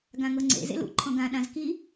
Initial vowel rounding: unrounded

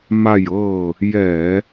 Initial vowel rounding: unrounded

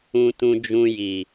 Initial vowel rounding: rounded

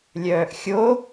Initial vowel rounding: rounded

